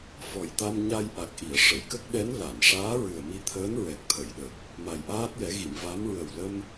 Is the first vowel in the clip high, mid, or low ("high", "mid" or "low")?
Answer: mid